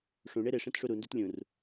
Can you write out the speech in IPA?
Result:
ʂ ũ ɳ e ɾ ɪ ʂ ẽ t ʂ u ɾ u n d u t lʲ ũ r

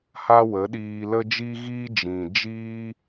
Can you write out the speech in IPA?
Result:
h a˦ w ə˨˦ ɗ iː˧ l ə˦ d͡ʒ i˦ ɣ iː˦ d͡ʒ ĩ˨ d͡ʒ iː˦

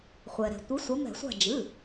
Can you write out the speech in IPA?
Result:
χʷ ɛ˩ ɾ ɛ̤˩ tʷ ɨ˨˦ sʷ ɐ˨˦ m ɛ̤˧˩˧ sʷ a̤˦˨ d͡ʒ ɨ˩˧˩

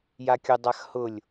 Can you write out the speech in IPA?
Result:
j a kʲ ʊ dˤ a x h ʊ lʲ

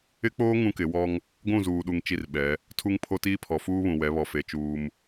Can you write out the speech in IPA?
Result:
ɪ˦ k͡p oː˦ ŋ ũ˦ k ɪ˨˦ w ɔ˦ ŋ | ɡʷ ũ˦˨ z uː˨ ɗ u˨ ŋ t͡ʃ i˦˨ r ɓ ɛ˨˦ | tʰ u˦ ŋ pʰ o˦ t iː˦ pʰ ɔ˨ f uː˦ β ũ˨ w ɛ˨˦ β ɔ˨ f e˨˦ t͡ʃ uː˦ m

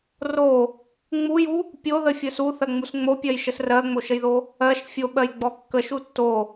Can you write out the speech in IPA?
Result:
r o | ŋ͡m u j u | pʲ o ð ə fʲ ə s u θ ɜ ŋ͡m u s ŋ͡m o pʲ ɜ j ʃ ə s r ɜ ŋ͡m o ʃ ə j ð o | ɜ ʃ fʲ o ɓ ɜ j ɡ͡b ɔ kː ə ʃ u tː o

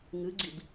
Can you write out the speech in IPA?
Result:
ŋ ɨ ɡ͡ǀ i b

